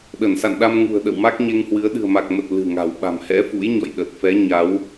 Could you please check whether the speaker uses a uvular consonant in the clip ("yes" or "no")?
no